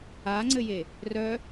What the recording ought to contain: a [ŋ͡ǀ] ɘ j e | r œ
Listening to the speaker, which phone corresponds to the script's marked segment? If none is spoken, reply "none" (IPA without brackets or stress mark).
ŋ͡ǀ